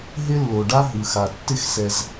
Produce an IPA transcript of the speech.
ɦ ɪ˥ lː o˩ ɖ a˥ ɦ ɯ˩ x a˩ tː ɪ˥ x s ɛ˩ z

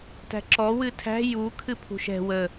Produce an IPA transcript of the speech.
t æ̤ ǁ ɔ w ɨ tʰ æ̤ j u kʰ ɨ pʰ ṳ ʃ ɛ̤ w ə

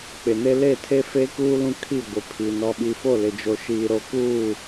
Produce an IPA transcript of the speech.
k͡p ɪ˨ n e˦ l e˦˨ tʰ e˦ f e˦ k uː˦ l ũ˦ kʰ i˦˨ ɡʷ ɪ˨ pʰ i˨ n ɔ˨ ɓ i˨ f o˦˨ l ɪ˨ d͡ʒ o˨ ʃ iː˨ ɾ o˨ k uː˦˨

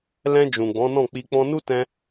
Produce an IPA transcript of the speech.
l ɛ̃˧ d͡ʒ ũ˨ ɡ͡b ɔ̃˨˦ n ɔ̃˦˨ k͡p i˧ k͡p ɔ̃˧ n u˦ t ɛ̃˧

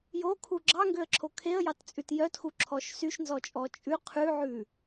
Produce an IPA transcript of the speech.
j o kʰ u ɡ͡ǁ ɑ ŋ ɡ ø ə̯ ǁʰ o kʰ e ə̯ j ɑ t t͡sʼ ʉ t j œ t x u ǁʰ ɔ ʃ s y ʃ n z ɔ t͡ʃʼ ɔ t͡ʃʼ ʉ qʰ ʉ ʕ ʉ

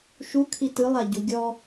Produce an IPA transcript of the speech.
ʃ u kʰ i t ɯ lˠ a ɟ u ɡʲ ɔ

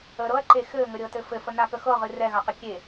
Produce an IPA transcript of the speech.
ə ɾ ɤ ɐ̯ ǃ e x ɘ ŋ ə ɾʲ ɤ t ɘ f ɘ f ə n a k ə x ɤ ʁ ɨ r ɛ ɣ a q ə kʲ e

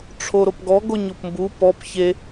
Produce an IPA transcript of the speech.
ʈ͡ʂʰ o ɾ o p ɡ ɔ ɡ o ɲ o p m b u p ɔ p ç e

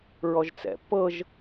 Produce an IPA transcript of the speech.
ɹ ɔ ʒ t͡s ɛ̰ pː ɤ ʒ

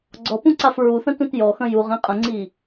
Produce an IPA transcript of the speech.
ɡ͡ǀ ɔ p ũ ǀ a f ɹ u θ ə̃ t ũ t j ɔ x ə̃ j u ʁ ĩ qʼ ə̃ ŋ͡ǀ i

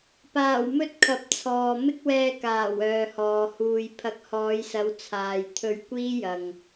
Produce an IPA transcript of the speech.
p aː˨˩ w m ɵ˧ t̚ kʰ ɐ˨˥ p̚ t͡sʰ ɔː˨ m ɪ˥ k̚ w ɛː˧ k aː˨˩ w œː˨ h ɔː˨ h uː˨ j pʰ ɐ˨˥ k̚ h ɔː˨˧ j s ɐ˨˧ w t͡sʰ aː˨ j t̪ʰ ɵ˧ ɥ kʷ iː˥ j ɐ˨ ŋ

